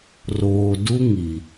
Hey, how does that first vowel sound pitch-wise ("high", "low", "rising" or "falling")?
low